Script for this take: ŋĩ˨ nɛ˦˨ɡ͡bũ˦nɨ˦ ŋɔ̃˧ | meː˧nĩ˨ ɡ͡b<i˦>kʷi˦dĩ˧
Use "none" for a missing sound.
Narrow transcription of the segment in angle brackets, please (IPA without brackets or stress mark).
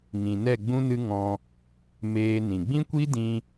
ĩ˦